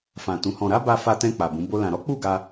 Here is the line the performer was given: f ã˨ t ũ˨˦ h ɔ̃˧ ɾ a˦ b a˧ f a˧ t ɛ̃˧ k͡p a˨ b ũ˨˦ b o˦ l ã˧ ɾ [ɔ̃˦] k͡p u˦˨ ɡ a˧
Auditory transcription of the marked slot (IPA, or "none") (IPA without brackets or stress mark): ɔ˦